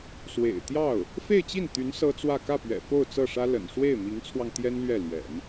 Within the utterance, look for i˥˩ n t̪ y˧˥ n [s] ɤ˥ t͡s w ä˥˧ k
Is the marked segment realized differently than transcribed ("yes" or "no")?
no